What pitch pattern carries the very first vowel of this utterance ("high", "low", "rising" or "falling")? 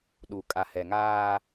low